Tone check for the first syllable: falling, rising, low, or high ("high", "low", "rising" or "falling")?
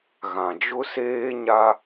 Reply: low